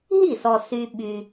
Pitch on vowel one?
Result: falling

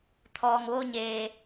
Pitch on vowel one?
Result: low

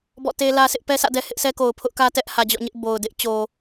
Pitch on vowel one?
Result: falling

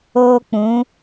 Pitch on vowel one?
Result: high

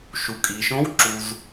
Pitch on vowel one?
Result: low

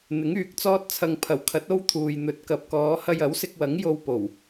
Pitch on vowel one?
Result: rising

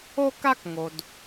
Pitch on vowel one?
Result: high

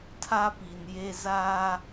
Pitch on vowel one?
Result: high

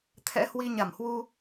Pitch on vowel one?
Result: rising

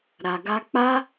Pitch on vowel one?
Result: low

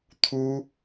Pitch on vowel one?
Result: high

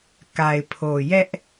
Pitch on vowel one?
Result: low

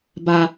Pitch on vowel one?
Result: high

